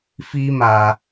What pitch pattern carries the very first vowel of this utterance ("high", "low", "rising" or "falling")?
high